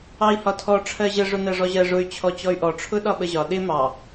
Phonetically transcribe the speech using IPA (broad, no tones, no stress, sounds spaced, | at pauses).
ɑ i̯ h ɒ tʰ ɔ ʈ͡ʂʰ ɜ ʑ ə ʐ ʊ n ɜ ʐ ɔ ʑ ɜ ʐ ʊ y̯ t͡ɕʰ ɔ t͡ɕ ɔ y̯ ʔ ɔ ʈ͡ʂʰ ʊ ɗ ɒ ɓ ə ʑ ɒ ɗ ɪ m ɑ